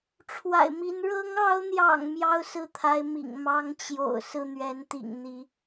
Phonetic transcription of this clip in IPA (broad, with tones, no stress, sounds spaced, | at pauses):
ʈ͡ʂʰ w a̰˨˩ ɪ̯ m i˧˥ n ɻ ɤ˧˥ ŋ ɑ˧˥ ʊ̯ n̪ j ɑ̰˨˩ ŋ m j ɑ˥ ʊ̯ s ɹ̩˥˩ t̪ʰ a˧˥ ɪ̯ m ḭ˨˩ ŋ m ɑ˧˥ ŋ t͡ɕ j o̰˨˩ ʊ̯ s ɹ̩˥˩ n̪ ɥ ɛ˧˥ n t̪ ḭ˨˩ ŋ n̪ i˧˥